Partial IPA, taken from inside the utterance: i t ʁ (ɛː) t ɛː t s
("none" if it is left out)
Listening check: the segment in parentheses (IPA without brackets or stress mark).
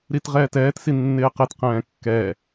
ɛː